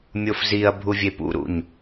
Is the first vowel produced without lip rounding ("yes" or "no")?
no